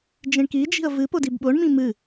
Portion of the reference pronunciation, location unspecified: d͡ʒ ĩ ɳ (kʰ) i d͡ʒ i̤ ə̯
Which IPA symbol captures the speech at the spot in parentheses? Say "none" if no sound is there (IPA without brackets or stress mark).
k